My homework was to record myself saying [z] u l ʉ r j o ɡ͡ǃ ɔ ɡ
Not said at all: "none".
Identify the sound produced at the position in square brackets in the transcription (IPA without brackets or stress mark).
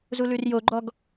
z